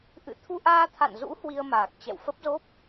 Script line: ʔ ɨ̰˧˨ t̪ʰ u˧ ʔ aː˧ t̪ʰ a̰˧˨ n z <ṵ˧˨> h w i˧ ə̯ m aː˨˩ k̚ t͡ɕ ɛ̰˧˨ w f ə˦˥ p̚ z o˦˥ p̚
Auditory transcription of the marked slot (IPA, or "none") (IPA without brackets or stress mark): ṵ˧˥